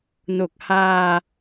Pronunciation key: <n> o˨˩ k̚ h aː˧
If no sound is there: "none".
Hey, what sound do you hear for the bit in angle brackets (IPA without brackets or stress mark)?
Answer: n